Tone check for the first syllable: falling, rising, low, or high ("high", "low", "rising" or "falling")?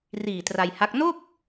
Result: low